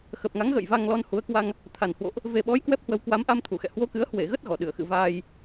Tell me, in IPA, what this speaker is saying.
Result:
x ə˨˩ p̚ ŋ a˨˦ ŋ ɣ ə̰ː˧˨ j v a˧ ŋ l ɔ˧ n h u˨˦ ə̯ k w a˧ ŋ | t̪ʰ a˨˩ n h w o̰˧˨ ʔ | v e˨˩ ɓ ɔ˨˦ j k w ɛ˦˥ p̚ h w ə˧ w k w a˨˦ m ʔ a˧ m t̪ʰ u˧˩ x ɛ̰˧˨ h w o˧ k ɨ˨˦ ə̯ h w e˧˩ ɣ ə˦˥ t̚ ɣ ɔ˧˩ ɗ ɨ˧˩ ə̯ x ɨ̰˧˨ v aː˧ j

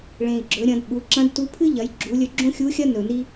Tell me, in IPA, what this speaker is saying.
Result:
ɭ ẽ˩ i̯ ɡ͡ǁ ɵ˩˧ ɾʲ ɐ̃˩˧ d ɓ u˩˧ ǁ ɐ̃˧˥ d t u˧˥ pʰ ɨ˥ ʎ ɐ˩˧ j ɡ͡ǁ u˩˧ lʲ ɵ˧ ɡ͡ǁ õ˥ xʲ u˧˥ xʲ ɐ˥ n ɵ˩ n i˥

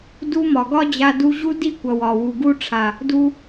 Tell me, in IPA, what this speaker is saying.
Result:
d u˦ m ɒ˨ ɡ ɒ˦ d͡ʑ a˧ d u˧ ʑ u˦ d i˦˨ kʷ ʌ˨ w ɒ˨ w u˨ ɡ u˧ ʈ͡ʂʰ a˨ | d u˧

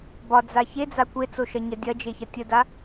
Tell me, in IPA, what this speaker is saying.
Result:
b ɒ d͡z a ç e d͡z a kʷ e t͡s o ʃ ɐ ɲ ɐ dʲ ɐ d͡ʒ e ç ɐ tʲ ə d a

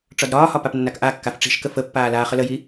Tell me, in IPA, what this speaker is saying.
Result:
ʈ͡ʂ ɒ d ɾ ɒː h ɒ p a p nː a k ʔ a kː a f ʈ͡ʂ i̤ ʃ k ə f ə pː aː l aː χ ə l ə j i

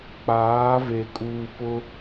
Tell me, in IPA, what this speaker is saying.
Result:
k͡p aː˨˦ v e˨ kʼ uː˨ p ʊ˦

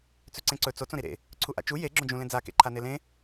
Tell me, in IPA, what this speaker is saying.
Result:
t͡s ʉ ǀ ẽ ǀ ɵ t͡s o t͡s õ ɾ i ɾ ḛ | ǀʰ u ʔ a̰ t͡ʃ u j e ɡ͡ǁ õ d͡ʒ ũ l ẽ d͡z a k ḛ ǃʰ a n e l ẽ

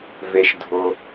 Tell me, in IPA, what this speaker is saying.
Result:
v e˩ ʃ dʱ ʊ˩

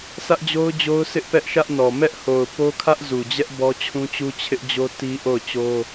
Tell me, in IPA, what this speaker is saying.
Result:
s ä˦ ʔ d͡ʑ o˦ ʊ̯ d͡ʑ o˦ ʊ̯ sʰ ɪ˦ ʔ p ɛ˦ ʔ ʃ ä˦ ʔ n ɔ˨ m ɛ˦ ʔ h o˨ ʊ̯ p o˦ kʰ ä˦ ʔ z u˨ d͡ʑ ɛ˦ ʔ b ɔ˦ t͡ɕʰ ũ˦ t͡ɕ u˦ t͡ɕʰ ɪ˦ ʔ d͡ʑ o˦ t i˦ ʔ o˦˨ ʊ̯ t͡ɕ o˦

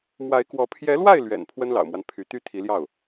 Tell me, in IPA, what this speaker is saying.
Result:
m w a˧˥ ɪ̯ k w ɔ˧˥ pʰ j ɛ˧˥ l w a˥˩ ɪ̯ l ɥ ɛ̰˨˩ n pʰ w ə˥ n l ɑ̰˨˩ ʊ̯ m w a˦ n pʰ y˧˥ t̪ y˥ t̪ʰ i˧˥ l j ɑ˥˩ ʊ̯

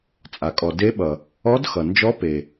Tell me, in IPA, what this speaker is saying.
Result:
t͡sʼ a˩ kʼ ɔ˩ d e˧˥ ɓ ʌ˩ | ɔ˧˥ d x ʌ˩ n d͡ʒ ɔ˧˥ p e˩

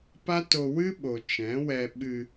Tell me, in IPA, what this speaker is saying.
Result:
p a˦ t o˧ w ɨ˦ ɓ o˨ t͡ʃ ɛ̃˨˦ w ɛ˧ ɓ ɨ˧

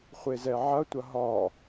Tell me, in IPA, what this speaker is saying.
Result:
χʷ e z ɛ ʕ ɐ tʷ ɐ ɦ ɒ

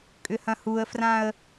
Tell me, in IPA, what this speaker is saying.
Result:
kʼ ʏ h ɐ̃ h u ə̯ f r ã ə̯

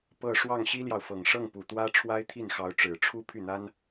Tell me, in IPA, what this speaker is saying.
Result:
p ɤ˥˧ ʂ w ɑ˥˩ ŋ ɕ i˥ l j ɑ˨ ʊ̯ f ɤ˨˩ ŋ ʂ ɤ˥˩ ŋ p u˨˩ t̪ w ä˥ ʈ͡ʂʰ w a˥ ɪ̯ t̪ʰ i˥˩ n x ɑ˧˥ ʊ̯ ʈ͡ʂ ɻ̩˨˩ ʈ͡ʂʰ u˥ pʰ y˥˩ n̪ a˥ n

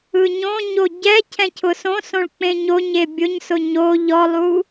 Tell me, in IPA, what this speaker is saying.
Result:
ɯ ɲ õ ɲ o ɟ ɛ cʰ ɛ̃ cʰ ʊ s õ s õ ɭ k͡p ẽ ɲ o ɲ e bʲ ʊ ɲ s ʊ ɲ o ʎ ɔ lˠ u

